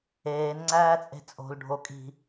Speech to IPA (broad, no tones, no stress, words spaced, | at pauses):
eːn ŋ͡ǀæːt͡sʼe̤t͡sʼo̤l ɖʱokʼi̤